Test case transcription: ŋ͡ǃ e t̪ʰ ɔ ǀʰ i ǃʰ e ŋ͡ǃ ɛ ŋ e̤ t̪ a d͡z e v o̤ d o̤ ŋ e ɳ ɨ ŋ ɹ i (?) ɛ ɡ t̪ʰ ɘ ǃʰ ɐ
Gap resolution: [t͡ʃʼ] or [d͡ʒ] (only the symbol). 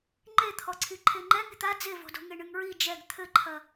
d͡ʒ